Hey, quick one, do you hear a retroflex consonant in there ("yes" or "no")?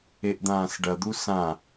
yes